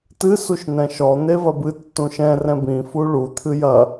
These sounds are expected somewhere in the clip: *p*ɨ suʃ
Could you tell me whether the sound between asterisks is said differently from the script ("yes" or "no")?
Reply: yes